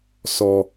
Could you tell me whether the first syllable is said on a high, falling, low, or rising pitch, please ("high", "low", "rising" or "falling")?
high